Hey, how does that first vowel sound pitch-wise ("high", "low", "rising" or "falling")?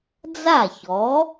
falling